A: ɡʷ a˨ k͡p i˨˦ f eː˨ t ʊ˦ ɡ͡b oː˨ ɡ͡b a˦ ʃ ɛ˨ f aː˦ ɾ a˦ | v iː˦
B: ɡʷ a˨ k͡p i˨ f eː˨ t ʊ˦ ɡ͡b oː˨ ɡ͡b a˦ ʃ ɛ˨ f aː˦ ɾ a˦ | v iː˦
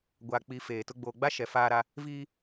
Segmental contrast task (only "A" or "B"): A